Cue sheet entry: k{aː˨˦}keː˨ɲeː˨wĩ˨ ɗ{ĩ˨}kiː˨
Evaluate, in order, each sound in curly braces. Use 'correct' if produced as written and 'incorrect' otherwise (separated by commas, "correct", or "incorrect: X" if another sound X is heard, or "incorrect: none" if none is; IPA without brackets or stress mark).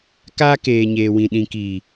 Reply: incorrect: aː˦, correct